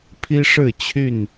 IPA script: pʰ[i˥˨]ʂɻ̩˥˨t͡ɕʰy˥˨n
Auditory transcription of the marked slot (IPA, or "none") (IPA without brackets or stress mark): i˦